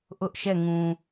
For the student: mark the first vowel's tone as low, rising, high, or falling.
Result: high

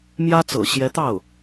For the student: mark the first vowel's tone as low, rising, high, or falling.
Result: high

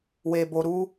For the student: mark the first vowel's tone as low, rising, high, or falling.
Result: low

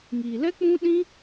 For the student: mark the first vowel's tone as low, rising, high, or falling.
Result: low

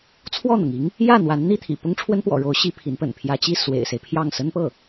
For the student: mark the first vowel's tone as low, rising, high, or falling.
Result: falling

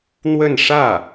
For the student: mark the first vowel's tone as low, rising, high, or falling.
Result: falling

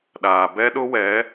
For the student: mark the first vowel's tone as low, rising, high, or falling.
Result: low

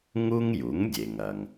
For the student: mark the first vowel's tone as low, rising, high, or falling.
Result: high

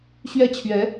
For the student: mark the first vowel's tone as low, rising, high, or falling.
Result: falling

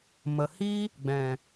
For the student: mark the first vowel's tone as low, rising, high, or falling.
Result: low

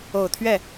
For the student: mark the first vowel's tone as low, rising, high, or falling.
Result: low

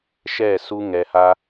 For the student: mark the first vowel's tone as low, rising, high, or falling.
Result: falling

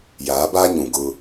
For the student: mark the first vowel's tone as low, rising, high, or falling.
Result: rising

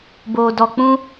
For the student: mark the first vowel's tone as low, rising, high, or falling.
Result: low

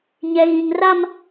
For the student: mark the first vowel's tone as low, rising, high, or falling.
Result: low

